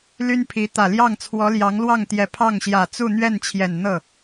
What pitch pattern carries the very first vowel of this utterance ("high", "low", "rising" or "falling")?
high